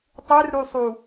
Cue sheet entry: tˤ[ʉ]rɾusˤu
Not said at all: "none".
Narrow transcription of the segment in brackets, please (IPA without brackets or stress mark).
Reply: ʉ